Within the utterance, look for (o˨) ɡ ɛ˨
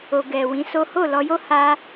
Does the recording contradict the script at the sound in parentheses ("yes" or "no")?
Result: no